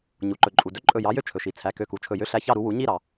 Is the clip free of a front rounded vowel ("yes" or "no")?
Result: no